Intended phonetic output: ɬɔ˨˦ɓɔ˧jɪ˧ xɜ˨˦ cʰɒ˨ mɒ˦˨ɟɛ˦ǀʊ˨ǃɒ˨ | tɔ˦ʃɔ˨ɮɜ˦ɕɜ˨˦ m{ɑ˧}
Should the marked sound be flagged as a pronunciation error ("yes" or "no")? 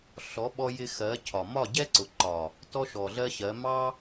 yes